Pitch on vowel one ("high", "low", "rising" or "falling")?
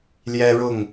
high